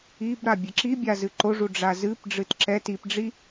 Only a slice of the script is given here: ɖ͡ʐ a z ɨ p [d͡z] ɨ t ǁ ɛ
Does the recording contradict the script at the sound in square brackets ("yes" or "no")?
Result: yes